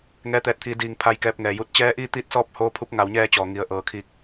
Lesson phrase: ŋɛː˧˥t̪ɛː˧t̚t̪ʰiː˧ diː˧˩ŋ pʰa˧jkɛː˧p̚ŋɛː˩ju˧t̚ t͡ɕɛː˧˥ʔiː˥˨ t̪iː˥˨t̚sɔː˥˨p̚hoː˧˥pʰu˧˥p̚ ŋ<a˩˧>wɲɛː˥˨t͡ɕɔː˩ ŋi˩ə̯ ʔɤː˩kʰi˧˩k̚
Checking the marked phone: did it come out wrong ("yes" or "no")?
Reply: no